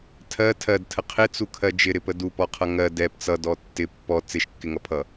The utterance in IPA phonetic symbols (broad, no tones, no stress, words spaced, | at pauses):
tʰɜ tʰɜdtʰə qʰɪt͡sukʰɜ d͡ʒɪɾɪpə dupɔqʰʌ ŋɜ dɛp t͡sʌdɔ tːɪ pːɔ t͡sɪʃkːɪŋʌpʰʌ